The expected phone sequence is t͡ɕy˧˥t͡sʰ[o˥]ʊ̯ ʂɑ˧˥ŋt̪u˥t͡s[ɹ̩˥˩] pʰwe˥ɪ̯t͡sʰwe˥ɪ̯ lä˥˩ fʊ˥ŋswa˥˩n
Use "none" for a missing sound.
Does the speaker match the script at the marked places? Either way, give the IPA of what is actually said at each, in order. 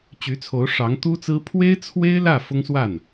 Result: o˧˥, ɹ̩˥

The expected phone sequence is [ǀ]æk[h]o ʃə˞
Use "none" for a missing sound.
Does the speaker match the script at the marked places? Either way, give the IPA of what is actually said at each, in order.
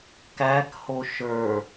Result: k, h

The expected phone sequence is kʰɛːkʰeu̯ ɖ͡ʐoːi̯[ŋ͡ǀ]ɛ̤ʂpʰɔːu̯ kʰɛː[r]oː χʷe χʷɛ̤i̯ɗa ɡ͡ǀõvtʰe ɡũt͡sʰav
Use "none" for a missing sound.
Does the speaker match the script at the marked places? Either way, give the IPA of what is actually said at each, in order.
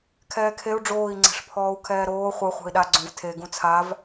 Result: ŋ͡ǀ, ɾ

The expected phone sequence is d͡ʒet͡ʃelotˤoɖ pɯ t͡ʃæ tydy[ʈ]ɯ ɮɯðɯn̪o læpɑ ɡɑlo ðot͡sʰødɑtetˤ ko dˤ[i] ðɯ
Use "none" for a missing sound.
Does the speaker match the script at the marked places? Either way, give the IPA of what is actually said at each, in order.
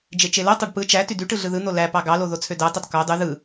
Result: ʈ, y

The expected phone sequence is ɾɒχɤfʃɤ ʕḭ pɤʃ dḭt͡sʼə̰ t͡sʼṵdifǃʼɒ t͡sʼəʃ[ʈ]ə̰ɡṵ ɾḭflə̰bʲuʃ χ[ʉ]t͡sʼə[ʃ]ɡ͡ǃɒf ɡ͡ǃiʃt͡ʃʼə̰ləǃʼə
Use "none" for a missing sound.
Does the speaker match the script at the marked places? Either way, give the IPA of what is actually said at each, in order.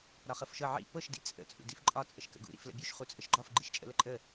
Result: k, u, ʃ

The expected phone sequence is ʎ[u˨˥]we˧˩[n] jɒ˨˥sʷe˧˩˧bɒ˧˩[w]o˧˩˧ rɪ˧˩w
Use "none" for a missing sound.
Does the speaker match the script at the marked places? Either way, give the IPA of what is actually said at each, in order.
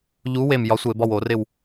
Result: u˨˥, m, w

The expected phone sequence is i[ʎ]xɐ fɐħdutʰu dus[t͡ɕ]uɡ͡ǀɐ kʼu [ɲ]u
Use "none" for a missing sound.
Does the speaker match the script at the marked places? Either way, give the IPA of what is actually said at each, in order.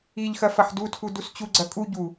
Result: ʎ, t͡ɕ, ɟ

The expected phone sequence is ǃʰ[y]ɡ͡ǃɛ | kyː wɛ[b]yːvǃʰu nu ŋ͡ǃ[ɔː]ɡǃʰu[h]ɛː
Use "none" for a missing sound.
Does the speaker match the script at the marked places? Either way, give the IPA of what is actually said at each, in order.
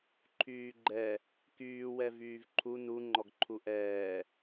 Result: yː, v, ɔ, ʔ

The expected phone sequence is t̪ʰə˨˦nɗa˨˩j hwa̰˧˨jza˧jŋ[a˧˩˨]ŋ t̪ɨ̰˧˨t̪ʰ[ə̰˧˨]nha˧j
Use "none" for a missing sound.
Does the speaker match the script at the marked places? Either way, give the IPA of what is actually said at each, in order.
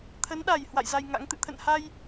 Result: a̰˧˥, ə̰˧˨

